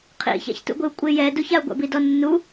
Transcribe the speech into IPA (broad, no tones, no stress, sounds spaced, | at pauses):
qʰ ḭ ç a̰ ç t ṵ ɡʷ ɪ u̯ kʷʼ ɪ j ɛ d u ç a u̯ ɡʷ a̰ b i d ɔ nː u